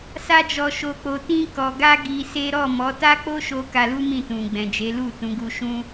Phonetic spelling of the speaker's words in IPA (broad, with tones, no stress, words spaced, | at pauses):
sa˦d͡ʒɔ˧ʃo˧k͡po˧ tĩ˧kɔ˨ɡa˧ ɡi˧se˦ ɾɔ˦˨mɔ˨˦ ta˦k͡po˦ʃo˧ ka˧lu˦ mĩ˦˨tũ˨ ɡ͡bɛ̃˨d͡ʒe˨˦ lu˦˨ tũ˨˦ɡu˧ ʃũ˦